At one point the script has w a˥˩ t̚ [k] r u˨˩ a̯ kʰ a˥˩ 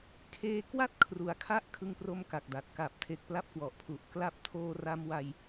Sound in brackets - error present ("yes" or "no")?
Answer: yes